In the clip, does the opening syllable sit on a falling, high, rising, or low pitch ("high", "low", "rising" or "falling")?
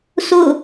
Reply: falling